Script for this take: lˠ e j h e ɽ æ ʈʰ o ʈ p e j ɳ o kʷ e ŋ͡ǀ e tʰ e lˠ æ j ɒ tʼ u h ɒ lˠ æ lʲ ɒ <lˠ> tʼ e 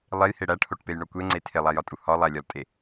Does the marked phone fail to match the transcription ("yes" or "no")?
yes